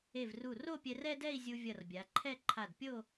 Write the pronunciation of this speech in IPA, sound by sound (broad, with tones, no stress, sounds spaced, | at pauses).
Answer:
e˧˩ v r u˧˩ r o˥˧ pʲ ɛ˧ r ɛ˥ d ɛ˥˧ i̯ zʲ u˧ vʲ ʌ˧˩ r bʲ a˩˧ ǃʰ ɛ˥˧ ǃʰ a˧˩ d pʲ o˥˧